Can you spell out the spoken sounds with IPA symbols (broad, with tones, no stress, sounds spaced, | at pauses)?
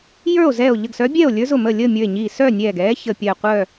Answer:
j ə˞˥˨ o̯ z ɛː˧˩ o̯ ʎ ə˧˩ ɡ s œ˧˥ bʲ ɛː˥˨ o̯ lʲ ə˞˧˥ z ʊ˥˨ m əː˥˨ lʲ əː˥˨ mʲ ə˞˧˩ e̯ ɲ iː˧˩ s œ˥˨ nʲ ɛː˧˩ ɡ ɛː˧˥ ç əː˧˩ pʲ ɜ˧˩ qʷ œ˥˨